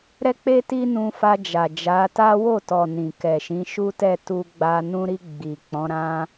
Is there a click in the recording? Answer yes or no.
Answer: no